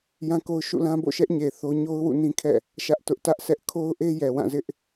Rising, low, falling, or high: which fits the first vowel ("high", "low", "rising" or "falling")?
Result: high